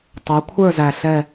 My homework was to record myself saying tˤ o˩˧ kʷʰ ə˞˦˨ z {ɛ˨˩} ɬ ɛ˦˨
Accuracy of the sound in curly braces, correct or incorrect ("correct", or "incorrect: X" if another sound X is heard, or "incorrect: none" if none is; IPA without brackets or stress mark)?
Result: incorrect: æ˨˩